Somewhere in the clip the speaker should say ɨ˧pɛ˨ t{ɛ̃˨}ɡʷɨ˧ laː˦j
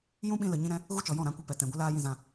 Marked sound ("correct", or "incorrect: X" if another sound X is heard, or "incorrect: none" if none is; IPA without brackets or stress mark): correct